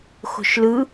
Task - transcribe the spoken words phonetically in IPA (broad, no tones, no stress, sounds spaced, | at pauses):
x o̤ ʃ l ɯ